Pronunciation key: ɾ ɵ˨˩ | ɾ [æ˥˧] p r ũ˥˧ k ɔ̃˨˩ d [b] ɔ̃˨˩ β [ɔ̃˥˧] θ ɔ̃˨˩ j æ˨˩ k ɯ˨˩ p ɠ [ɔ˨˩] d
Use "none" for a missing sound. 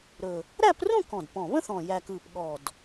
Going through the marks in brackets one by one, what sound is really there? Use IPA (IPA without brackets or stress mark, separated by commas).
æ˥˧, p, ə̃˥˧, ɔ˨˩